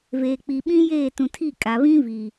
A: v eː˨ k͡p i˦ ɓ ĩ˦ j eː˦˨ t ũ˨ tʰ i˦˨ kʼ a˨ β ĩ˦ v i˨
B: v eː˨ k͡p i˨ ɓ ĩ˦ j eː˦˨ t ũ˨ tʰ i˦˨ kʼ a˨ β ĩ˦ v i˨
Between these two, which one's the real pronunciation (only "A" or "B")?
B